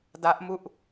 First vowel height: low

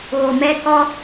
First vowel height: mid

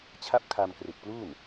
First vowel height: low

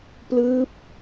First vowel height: high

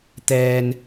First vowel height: mid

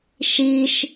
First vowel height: high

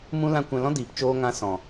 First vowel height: high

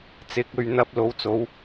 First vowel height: high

